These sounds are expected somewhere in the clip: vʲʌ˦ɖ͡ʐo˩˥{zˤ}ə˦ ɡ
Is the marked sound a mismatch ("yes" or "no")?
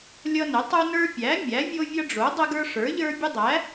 yes